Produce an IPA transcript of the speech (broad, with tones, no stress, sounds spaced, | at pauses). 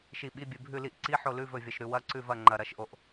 ʃ i˦˨ ɓ i˧˥˧ bʲ ɨ˦˨ bʱ ʉ˦˨ l i˦˨ ʔ ǀ i˧˥˧ ħ o˦˨ l ʉ˧˥˧ v ɵ˦˨ vʲ ɐ˦˨ ʃ ɾ ʉ˦˨ w ɐ˧˥˧ ǀ ʉ˦˨ v ɐ˦˨ ŋ͡ǃ ɐ˦˨ ɾ ɐ˧˥˧ ʃ ʔ o˦˨ ʔ